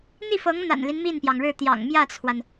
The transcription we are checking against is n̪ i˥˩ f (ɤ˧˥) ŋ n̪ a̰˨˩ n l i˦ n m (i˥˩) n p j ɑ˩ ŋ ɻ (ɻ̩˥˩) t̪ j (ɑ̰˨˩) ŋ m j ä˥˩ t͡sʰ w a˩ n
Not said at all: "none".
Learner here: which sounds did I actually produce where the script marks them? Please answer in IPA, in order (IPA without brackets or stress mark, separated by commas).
ɤ˧˥, i˥˩, ɻ̩˥˩, ɑ̰˨˩